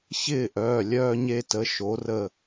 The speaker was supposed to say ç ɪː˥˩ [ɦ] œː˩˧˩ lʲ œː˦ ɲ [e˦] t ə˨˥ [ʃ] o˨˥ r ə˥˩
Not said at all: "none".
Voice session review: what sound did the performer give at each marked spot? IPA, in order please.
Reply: ʔ, e˦, ʃ

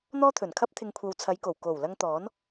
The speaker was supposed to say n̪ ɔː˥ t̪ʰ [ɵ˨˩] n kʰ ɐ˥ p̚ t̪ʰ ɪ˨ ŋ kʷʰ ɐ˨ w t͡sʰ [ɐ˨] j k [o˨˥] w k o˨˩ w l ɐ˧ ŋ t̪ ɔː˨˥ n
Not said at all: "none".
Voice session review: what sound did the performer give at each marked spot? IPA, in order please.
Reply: ɵ˨˩, ɐ˨˧, o˨˩

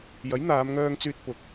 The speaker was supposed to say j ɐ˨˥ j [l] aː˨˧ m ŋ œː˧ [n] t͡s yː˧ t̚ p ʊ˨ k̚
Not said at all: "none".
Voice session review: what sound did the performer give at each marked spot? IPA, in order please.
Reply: n̪, ŋ

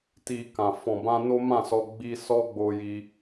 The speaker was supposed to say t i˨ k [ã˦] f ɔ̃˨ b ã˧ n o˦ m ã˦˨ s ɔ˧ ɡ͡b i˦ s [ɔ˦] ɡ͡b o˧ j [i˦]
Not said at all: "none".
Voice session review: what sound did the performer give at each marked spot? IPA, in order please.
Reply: ã˨, ɔ˦, i˦

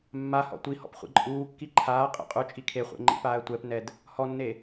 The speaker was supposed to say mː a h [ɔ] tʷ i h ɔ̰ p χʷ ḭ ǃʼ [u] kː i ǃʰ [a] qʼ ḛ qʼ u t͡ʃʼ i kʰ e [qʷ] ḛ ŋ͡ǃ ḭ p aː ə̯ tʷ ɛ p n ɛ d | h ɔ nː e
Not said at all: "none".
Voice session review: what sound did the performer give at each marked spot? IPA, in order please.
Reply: ɔ̰, uː, aː, χʷ

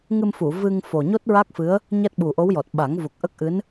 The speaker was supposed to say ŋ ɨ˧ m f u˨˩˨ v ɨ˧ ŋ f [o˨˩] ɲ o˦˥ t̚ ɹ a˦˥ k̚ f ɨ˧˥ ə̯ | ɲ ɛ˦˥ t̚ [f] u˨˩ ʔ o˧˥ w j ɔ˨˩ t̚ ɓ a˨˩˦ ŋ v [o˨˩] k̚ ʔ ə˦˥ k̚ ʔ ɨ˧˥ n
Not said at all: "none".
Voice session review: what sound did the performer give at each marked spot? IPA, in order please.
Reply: o˨˩, ɓ, u˨˩

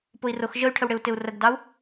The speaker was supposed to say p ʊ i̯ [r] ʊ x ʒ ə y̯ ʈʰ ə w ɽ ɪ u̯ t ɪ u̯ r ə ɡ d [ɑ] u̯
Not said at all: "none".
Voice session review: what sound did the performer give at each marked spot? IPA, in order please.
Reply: r, ɑ

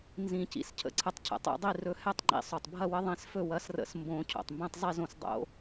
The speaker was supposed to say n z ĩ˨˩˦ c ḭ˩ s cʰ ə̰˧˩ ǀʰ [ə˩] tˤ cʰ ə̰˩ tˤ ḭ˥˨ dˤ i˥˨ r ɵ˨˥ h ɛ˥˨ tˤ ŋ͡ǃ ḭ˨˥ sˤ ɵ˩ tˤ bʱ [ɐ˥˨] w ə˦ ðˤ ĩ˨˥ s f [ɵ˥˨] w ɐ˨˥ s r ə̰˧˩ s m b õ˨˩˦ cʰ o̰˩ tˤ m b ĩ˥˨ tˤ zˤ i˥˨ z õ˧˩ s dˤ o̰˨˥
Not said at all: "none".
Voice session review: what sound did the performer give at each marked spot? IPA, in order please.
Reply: ə˨˥, ɐ˥˨, ɵ˥˨

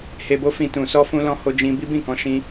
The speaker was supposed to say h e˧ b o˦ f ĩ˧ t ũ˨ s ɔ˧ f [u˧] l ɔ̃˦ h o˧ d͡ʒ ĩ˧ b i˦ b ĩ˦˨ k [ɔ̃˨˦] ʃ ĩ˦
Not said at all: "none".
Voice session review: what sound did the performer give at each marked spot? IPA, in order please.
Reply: ũ˧, ɔ̃˨˦

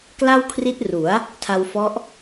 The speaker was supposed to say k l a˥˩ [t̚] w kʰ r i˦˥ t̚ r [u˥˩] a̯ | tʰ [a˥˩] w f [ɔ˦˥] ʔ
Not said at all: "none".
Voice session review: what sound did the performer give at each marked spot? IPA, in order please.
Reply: none, u˩˦, a˧, ɔ˦˥

